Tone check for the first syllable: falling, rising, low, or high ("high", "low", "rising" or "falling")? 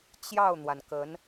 falling